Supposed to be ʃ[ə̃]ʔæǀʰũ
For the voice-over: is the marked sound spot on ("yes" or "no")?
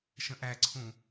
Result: yes